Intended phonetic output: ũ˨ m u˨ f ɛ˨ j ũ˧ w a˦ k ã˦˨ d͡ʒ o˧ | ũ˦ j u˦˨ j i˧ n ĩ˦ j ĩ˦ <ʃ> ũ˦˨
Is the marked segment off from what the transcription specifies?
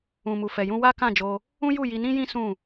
yes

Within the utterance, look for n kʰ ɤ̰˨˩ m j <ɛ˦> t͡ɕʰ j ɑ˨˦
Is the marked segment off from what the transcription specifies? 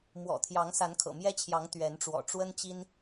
no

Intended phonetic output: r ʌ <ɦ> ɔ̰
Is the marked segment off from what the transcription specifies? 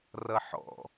yes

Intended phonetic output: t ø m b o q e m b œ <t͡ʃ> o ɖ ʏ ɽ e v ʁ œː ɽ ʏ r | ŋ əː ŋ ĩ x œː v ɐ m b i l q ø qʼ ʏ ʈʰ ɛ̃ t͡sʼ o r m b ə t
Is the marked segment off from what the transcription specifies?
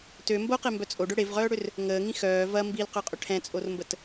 yes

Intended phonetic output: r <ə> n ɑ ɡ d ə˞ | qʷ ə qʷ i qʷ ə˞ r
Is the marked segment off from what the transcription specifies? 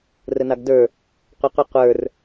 no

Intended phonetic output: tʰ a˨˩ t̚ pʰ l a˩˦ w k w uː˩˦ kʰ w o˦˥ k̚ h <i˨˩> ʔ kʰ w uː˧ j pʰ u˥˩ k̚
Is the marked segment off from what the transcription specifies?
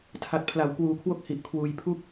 no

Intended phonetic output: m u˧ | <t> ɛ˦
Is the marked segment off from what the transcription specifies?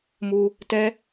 no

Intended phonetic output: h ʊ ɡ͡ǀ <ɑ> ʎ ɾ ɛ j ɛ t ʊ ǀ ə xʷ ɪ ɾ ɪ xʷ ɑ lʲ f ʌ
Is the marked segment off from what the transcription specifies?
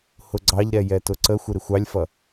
no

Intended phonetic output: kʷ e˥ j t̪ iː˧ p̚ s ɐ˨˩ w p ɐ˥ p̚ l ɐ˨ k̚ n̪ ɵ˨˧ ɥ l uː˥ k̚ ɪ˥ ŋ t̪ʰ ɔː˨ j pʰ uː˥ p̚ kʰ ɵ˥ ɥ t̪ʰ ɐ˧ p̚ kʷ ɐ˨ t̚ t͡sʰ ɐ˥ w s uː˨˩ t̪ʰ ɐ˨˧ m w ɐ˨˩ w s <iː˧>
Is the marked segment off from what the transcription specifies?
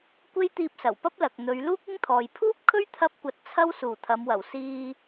no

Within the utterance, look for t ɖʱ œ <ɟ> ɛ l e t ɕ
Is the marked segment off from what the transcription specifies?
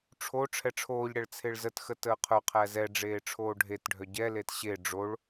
no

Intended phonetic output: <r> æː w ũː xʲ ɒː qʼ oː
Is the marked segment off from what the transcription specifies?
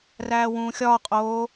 no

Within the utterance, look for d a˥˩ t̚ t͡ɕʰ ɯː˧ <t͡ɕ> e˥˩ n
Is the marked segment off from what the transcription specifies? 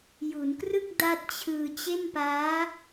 no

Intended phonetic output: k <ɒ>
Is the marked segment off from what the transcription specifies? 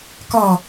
no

